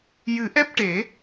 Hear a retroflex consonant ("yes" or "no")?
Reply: yes